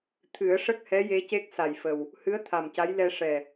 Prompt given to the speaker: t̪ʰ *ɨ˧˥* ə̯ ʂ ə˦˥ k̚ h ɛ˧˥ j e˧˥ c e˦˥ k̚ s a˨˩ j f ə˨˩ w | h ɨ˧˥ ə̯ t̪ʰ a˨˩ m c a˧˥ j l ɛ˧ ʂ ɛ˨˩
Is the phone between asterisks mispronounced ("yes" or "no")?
yes